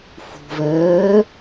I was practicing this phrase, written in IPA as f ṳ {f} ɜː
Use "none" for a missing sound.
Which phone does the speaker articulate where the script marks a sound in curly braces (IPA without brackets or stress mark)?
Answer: v